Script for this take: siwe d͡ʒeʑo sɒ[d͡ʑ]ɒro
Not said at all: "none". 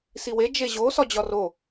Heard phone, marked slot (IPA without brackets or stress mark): d͡ʑ